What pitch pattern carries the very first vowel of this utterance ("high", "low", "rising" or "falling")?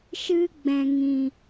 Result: high